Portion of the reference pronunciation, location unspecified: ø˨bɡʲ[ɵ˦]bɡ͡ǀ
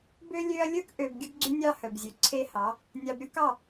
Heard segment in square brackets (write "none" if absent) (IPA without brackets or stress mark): ɵ˦